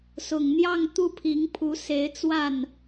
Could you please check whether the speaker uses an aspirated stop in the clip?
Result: yes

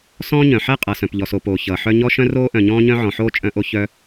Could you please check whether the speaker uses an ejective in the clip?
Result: yes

